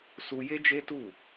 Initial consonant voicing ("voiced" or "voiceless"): voiceless